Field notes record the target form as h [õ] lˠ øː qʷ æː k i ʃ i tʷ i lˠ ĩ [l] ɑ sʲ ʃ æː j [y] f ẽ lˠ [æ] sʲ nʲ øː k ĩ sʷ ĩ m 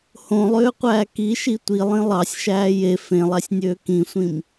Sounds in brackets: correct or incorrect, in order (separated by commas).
correct, incorrect, incorrect, correct